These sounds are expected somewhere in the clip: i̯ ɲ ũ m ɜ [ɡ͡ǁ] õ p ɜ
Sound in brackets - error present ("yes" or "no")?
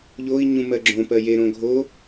no